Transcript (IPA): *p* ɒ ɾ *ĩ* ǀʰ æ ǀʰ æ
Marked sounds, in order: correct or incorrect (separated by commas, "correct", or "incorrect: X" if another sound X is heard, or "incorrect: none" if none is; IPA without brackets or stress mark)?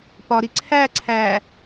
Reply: correct, incorrect: i